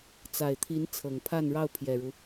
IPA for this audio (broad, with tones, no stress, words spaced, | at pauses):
t͡sa˨˩ɪ̯t̪ʰi˧˥n t͡sʰɤ˨˩ŋpʰa˥˧nɻɑ˥˩ʊ̯ pʰjɛ˨˩ɻu˦